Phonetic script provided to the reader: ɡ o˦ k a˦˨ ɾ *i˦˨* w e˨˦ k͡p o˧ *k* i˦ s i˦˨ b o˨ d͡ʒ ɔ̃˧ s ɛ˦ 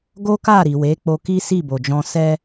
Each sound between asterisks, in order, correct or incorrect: incorrect, correct

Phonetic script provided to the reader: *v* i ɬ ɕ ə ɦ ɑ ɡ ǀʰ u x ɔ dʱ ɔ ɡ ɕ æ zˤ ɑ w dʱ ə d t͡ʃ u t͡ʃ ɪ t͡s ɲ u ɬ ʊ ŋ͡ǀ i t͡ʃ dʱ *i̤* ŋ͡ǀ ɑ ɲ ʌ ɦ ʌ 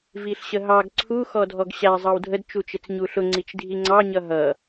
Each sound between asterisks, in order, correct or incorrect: correct, incorrect

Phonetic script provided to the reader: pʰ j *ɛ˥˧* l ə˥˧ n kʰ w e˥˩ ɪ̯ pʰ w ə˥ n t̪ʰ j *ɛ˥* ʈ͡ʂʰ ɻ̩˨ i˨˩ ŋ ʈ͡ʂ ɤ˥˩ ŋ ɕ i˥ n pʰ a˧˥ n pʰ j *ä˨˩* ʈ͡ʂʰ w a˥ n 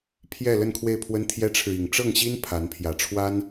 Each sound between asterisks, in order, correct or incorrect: correct, correct, correct

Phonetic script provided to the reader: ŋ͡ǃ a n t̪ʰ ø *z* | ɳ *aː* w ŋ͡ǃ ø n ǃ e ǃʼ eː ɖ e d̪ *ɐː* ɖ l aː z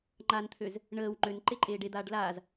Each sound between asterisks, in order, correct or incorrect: correct, incorrect, incorrect

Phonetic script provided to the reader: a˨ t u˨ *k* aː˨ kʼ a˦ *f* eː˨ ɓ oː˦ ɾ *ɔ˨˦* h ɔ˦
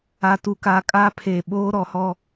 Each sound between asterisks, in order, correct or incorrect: correct, incorrect, correct

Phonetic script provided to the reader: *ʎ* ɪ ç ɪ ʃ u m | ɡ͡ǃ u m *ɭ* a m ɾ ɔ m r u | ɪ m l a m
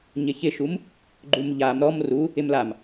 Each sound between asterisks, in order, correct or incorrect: incorrect, incorrect

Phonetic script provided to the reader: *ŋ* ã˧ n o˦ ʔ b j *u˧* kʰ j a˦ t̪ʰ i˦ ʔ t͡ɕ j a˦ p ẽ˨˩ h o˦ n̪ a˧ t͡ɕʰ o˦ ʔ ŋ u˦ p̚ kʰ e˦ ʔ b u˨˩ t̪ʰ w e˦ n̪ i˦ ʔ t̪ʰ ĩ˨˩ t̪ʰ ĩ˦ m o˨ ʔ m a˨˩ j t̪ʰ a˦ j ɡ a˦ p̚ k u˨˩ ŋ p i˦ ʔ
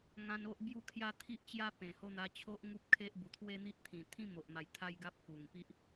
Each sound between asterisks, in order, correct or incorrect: correct, incorrect

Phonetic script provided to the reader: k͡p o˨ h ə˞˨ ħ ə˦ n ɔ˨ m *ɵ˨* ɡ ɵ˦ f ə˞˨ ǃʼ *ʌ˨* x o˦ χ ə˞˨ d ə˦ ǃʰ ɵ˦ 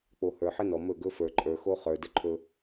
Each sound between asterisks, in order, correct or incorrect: incorrect, incorrect

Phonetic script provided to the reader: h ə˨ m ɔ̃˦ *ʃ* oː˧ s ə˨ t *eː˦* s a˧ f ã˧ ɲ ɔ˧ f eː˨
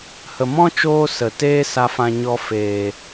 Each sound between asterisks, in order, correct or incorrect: incorrect, correct

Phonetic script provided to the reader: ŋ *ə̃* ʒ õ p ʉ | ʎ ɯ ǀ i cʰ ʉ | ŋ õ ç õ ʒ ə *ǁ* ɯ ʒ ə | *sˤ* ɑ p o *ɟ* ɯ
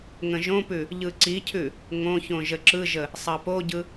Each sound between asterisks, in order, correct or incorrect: correct, correct, correct, correct

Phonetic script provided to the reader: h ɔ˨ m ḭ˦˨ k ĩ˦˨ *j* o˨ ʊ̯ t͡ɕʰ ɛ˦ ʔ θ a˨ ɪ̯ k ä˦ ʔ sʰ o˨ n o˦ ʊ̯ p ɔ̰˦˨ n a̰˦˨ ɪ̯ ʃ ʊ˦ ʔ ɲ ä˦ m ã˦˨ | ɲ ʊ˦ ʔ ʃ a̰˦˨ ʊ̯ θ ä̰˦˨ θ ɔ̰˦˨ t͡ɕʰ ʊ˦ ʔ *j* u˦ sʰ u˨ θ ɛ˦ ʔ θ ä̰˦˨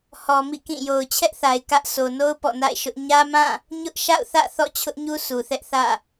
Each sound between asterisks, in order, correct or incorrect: correct, incorrect

